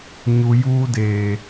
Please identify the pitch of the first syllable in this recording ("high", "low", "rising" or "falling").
low